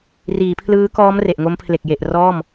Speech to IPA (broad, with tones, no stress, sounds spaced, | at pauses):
r iː˩˦ pʰ l ɯː˦˥ k ɔː˦˥ m r e˨˩ ʔ ŋ o˦˥ m pʰ l e˨˩ k̚ j e˨˩ ʔ r ɔː˥˩ m